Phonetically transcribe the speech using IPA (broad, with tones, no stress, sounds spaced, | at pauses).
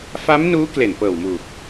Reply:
f a˦˥ m n uː˦˥ k l e˨˩ n p ɤː˨˩ w m uː˨˩ k̚